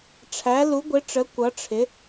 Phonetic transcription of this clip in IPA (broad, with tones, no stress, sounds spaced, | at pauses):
ʈ͡ʂʰ æ˧˥ l u˧˥ ɡʷ ɪ˧˥ ʈ͡ʂ ə˧˥ kʷ ʌ˧˥ ʈ͡ʂʰ ɪ˧˥